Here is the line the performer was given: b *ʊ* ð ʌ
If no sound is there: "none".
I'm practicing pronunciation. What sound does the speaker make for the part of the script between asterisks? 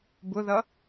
ʊ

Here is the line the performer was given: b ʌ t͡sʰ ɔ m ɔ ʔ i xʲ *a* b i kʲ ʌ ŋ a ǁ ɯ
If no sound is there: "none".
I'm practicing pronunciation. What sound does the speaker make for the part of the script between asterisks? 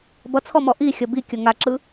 ʌ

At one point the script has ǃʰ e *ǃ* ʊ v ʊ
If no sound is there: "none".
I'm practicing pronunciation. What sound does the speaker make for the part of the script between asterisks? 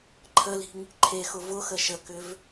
x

